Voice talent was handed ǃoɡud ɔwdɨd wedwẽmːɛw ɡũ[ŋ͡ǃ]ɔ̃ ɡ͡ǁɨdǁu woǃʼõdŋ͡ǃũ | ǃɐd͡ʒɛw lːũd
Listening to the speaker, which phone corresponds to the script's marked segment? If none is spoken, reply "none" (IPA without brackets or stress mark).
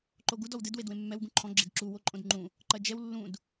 ǃʰ